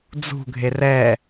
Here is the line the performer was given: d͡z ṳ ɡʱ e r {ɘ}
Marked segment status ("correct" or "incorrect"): incorrect